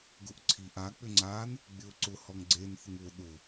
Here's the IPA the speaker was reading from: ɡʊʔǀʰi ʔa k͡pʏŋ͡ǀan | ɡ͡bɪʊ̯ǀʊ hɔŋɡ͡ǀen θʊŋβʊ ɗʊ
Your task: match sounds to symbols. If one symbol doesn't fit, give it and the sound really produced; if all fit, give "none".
none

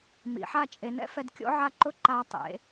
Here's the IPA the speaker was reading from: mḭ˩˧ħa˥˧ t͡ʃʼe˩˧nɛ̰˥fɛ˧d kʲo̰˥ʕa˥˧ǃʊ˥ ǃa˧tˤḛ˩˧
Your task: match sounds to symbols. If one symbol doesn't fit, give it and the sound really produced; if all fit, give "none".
none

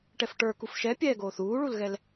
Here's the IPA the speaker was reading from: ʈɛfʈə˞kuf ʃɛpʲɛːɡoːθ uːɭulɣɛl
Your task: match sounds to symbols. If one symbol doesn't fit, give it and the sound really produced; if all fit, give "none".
none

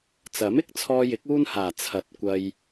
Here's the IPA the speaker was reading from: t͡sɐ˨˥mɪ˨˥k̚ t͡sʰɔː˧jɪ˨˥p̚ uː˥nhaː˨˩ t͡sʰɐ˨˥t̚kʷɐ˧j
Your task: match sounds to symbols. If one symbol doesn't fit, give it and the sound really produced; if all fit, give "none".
p̚ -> k̚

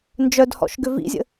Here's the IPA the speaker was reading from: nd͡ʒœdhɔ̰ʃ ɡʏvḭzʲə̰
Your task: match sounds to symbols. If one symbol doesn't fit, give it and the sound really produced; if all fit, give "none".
none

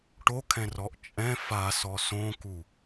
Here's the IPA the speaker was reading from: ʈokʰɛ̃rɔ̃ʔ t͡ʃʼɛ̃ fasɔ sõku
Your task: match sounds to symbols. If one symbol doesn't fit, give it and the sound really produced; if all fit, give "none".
ɔ̃ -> ɔ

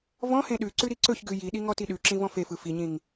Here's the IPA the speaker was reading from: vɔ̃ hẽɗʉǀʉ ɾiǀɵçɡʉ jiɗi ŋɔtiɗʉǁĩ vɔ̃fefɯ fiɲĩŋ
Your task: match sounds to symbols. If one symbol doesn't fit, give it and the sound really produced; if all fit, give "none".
none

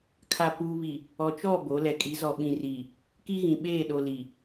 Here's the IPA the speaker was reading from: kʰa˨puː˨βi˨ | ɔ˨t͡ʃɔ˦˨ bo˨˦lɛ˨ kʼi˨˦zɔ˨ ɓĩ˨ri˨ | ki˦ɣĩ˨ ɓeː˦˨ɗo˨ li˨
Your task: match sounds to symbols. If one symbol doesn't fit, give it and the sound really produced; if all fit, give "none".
none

